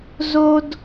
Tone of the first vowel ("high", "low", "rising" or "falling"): high